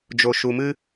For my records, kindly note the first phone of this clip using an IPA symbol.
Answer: d͡ʒ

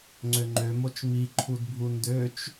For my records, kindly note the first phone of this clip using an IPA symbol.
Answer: ŋ͡ǀ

